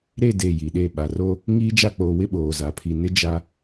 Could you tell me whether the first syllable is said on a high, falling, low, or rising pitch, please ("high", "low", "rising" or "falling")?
falling